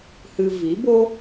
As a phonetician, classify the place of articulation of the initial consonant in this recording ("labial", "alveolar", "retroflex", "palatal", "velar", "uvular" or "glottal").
glottal